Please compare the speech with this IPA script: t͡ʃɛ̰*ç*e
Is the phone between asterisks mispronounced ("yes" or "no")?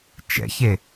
no